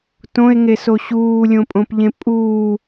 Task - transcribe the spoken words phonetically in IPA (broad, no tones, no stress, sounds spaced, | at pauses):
t õ e̯ ŋ e s o ɕ uː lʲ õ pʼ õ p ʎ ẽ pʼ uː